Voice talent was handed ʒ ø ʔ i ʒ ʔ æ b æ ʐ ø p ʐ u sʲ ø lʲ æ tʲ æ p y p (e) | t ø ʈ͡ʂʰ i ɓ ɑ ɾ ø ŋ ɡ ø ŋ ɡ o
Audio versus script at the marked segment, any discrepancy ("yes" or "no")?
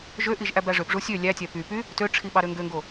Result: yes